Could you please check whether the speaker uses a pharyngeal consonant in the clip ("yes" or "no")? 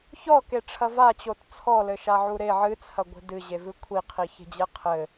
yes